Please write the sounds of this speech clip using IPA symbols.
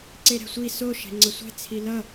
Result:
ǀ e ɾ ɛ̤ sʷ i s o ʃ ɛ̤ ŋ͡ǀ ʌ sʷ e̤ t͡sʰ i l ʌ

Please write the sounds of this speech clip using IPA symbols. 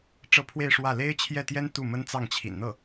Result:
ʈ͡ʂ ɤ˥˧ pʰ w e˥˧ ɪ̯ ʂ w ä˥˩ l e˥ ɪ̯ t͡ɕʰ j ɛ˥˩ t̪ j ɛ˥ n t̪ u˥˩ m ə˥ n t͡s ɑ˥˩ ŋ t͡ɕʰ ḭ˨˩ n n̪ ɤ˥˩

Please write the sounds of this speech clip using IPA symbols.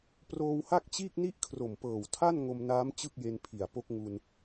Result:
p r oː˧ w h a˥˩ k̚ t͡ɕ iː˥˩ k̚ n i˥˩ ʔ kʰ r o˨˩ m p ɤː˨˩ w tʰ a˥˩ n ŋ o˧ m n aː˦˥ m t͡ɕ ɯ˥˩ k̚ j e˧ n pʰ i˨˩ a̯ p o˦˥ k̚ ŋ u˧ n

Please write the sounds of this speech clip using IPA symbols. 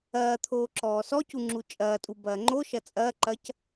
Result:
ɐː t̪ʰ oː ǁ ɔː s ɔ c u ŋ͡ǁ u t͡ʃʼ ɐː tʼ u b ɐː ŋ͡ǃ o ʃ ɐ t͡sʼ ɐː ǃ ɐ c

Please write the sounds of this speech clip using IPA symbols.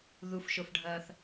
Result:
ð u f ʃ o f ɖʱ ɐː θ

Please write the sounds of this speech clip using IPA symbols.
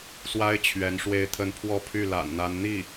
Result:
s w a˥ ɪ̯ t͡ɕʰ ɥ ɛ˧˥ n ʂ w e˥˧ ɪ̯ t̪ʰ ə˥˧ n pʰ w ɔ˥˧ pʰ y˥˩ l a̰˨˩ n n̪ a˧˥ n n̪ i˥˩

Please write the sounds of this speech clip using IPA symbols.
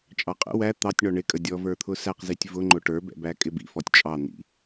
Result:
t͡ʃʼ ɑ qʼ ə̰ w æ t̪ ɑ tʲ ɳ ɔ ɳ ɪ kʼ ə dʲ ɔ v ə˞ t̪ʰ ʊ s æ q z i tʲ v ʊ ŋ͡ǃ ʊ ʈ ə˞ b ɛ̰ b æ kʼ ɪ b ḭ f ɔ tʲ t͡ʃʼ ɑ n̪ ḭ

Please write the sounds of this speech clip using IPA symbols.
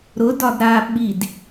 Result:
ɾ ʊ d ɒ d ɾ a ɓ i d

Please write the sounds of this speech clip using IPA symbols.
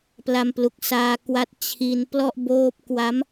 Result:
p l a˧ m p l u˨˩ k̚ s aː˧ k w a˦˥ t̚ t͡ɕʰ i˧ n p l ɔ˥˩ ʔ b oː˦˥ p̚ k w a˦˥ m

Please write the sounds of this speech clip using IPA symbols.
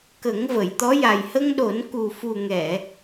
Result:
k ə˨˩˦ ŋ v ə˨˩˨ j t̪ ɔ˧˥ j a˨˩ j h ə˧ ŋ ɗ o˨˩˦ n k u˨˩ f u˨˩ ŋ ɛ˨˩˨

